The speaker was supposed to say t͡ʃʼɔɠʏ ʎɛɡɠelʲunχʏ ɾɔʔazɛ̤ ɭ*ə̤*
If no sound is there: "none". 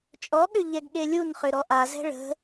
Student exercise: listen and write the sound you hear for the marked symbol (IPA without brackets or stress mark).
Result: ə̤